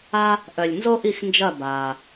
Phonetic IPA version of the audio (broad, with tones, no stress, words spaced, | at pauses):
a˦ | ʔœ˨lʲnzo˦ʔi˦˨xnd͡ʒɐ˦˨ baː˨